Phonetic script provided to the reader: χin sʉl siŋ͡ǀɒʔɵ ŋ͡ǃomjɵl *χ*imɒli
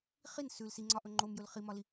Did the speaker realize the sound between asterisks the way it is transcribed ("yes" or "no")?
yes